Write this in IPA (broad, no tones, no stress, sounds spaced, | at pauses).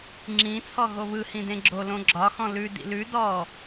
ŋ͡ǁ ĩ t͡sʰ ɔ ɣ o β ɯ h ĩ d ẽ ɡ͡ǁ o l õ ɡ͡ǁ ɒ x ɔ̃ l ʉ d ḭ l ʉ d ɔ